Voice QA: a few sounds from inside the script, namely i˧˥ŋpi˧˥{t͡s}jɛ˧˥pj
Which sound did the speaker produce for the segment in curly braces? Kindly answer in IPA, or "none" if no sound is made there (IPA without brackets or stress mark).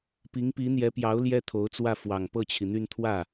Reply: n̪